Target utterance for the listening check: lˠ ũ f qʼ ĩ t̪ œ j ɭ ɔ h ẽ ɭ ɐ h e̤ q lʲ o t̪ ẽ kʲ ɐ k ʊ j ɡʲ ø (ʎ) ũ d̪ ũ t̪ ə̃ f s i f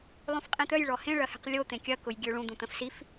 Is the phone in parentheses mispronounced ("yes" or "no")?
yes